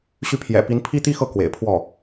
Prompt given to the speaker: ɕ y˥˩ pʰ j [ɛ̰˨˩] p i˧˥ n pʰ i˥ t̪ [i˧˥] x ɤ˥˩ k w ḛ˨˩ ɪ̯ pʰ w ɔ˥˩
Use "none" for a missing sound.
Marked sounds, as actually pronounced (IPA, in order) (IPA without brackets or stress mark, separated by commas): ɛ̰˨˩, i˥